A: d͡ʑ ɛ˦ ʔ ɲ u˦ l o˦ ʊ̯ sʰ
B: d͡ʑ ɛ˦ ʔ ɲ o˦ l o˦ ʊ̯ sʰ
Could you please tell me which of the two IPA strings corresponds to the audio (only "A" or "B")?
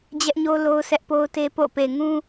B